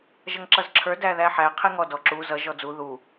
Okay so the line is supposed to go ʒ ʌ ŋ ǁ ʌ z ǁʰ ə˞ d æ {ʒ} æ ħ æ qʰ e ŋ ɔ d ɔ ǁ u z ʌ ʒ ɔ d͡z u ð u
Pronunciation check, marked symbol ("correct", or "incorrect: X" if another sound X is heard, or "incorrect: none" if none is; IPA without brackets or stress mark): incorrect: ð